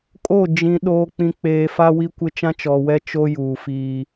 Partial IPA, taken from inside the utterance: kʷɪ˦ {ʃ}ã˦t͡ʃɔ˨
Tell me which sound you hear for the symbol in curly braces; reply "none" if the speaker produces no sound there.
t͡ʃ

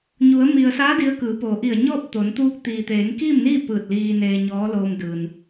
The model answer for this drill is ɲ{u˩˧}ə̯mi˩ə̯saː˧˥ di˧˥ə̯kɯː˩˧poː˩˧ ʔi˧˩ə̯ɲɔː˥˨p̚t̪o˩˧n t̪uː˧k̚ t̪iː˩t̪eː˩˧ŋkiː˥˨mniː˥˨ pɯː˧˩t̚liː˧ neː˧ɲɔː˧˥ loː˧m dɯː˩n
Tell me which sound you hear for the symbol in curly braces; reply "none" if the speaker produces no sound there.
u˩˧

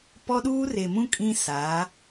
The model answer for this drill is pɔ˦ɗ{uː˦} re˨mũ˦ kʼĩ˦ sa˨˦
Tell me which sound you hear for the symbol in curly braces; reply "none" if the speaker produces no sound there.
uː˦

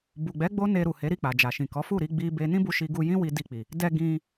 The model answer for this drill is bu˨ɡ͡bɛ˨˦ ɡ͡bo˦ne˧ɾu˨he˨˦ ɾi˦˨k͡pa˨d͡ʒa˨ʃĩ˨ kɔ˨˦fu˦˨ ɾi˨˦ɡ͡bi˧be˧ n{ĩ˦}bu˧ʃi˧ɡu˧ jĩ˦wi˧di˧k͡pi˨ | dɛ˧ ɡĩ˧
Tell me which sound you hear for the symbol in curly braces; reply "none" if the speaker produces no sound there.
ĩ˦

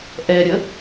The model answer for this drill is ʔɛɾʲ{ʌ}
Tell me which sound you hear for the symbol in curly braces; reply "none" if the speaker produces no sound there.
ə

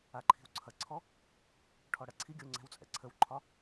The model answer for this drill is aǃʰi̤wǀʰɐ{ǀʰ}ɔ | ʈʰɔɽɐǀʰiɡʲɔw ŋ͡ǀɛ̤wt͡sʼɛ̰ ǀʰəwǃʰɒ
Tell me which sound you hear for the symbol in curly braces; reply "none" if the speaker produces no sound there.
ǀʰ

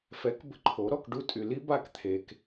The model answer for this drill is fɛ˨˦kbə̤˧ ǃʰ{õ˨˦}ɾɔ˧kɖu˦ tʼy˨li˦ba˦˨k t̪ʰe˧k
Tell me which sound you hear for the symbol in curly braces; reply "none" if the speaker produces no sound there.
o˨˦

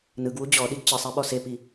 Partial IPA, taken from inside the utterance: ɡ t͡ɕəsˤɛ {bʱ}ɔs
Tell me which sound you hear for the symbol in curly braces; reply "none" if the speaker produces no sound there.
ɓ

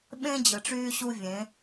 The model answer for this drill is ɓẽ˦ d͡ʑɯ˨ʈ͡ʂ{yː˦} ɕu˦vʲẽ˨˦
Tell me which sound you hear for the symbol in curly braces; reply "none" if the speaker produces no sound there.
yː˦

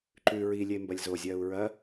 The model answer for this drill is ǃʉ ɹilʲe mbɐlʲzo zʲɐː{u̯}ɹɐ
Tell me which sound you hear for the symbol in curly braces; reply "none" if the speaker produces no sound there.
u̯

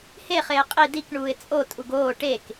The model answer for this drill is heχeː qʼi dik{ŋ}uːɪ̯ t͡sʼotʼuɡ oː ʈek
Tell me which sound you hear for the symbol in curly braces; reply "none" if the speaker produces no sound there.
ɳ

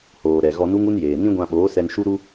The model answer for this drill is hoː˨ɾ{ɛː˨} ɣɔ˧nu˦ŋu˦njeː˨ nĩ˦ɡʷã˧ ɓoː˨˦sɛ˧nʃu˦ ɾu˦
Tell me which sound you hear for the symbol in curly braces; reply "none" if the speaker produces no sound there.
ɛ˨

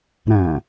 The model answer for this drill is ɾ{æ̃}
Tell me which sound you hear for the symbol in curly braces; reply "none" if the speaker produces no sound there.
æ̃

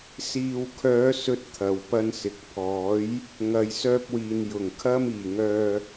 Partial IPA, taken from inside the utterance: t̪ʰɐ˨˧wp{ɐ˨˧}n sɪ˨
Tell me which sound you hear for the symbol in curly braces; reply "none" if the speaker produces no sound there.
ɐ˥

